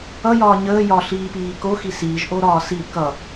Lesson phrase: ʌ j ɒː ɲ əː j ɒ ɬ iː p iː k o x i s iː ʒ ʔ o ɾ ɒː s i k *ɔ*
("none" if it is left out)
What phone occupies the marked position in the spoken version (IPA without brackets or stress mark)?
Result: ʌ